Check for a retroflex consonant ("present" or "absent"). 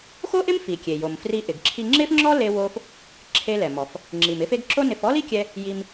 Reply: absent